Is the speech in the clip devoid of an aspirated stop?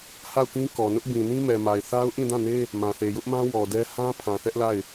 no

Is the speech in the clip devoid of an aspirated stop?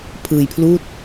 no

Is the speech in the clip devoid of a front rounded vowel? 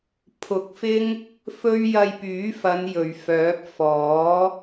no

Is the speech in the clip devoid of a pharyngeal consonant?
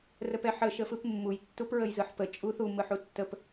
no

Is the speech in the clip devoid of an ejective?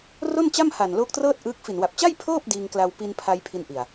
yes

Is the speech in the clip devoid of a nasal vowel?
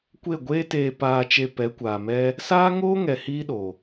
yes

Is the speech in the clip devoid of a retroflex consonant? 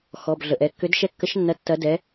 yes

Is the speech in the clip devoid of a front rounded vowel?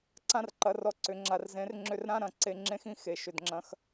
no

